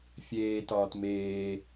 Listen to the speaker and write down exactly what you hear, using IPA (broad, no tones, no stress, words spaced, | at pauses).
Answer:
fʲeː tɒːtmeː